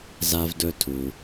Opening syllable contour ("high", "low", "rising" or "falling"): high